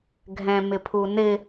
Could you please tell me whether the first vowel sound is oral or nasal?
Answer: nasal